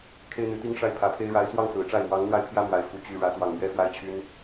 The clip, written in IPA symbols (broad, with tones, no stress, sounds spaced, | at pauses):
kʰ e˥ ɪ̯ n̪ y˧˥ t̪ i˥ ŋ ʂ a˥˩ ɪ̯ pʰ ä˧˥ pʰ e˥ ɪ̯ ɻ a˧˥ ɪ̯ s w ɑ˥˩ ŋ s ɹ̩˨˩ ʈ͡ʂ a˥˩ ɪ̯ m w ɑ˧˥ ŋ n̪ w a˥˩ ɪ̯ pʰ j ä˥ m w a˧˥ ɪ̯ f u˧˥ t͡ɕ y˥˩ ɻ ä˥ t̪ w ɑ˥˩ ŋ m ɥ ɛ˥ x w a˥ ɪ̯ t͡ɕʰ y˥ n